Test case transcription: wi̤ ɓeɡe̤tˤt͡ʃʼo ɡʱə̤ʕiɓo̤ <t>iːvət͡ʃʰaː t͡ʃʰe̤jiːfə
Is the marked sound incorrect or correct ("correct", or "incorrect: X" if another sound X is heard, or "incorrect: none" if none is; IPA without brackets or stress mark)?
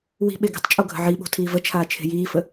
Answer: incorrect: tʰ